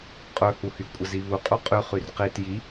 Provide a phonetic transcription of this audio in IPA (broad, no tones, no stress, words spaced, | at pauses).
qʼɵhuhy kʷʼəziβu qʼuqʼy χyrqit ji